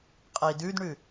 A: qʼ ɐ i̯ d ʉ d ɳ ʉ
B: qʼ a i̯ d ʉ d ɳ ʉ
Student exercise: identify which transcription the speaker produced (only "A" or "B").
A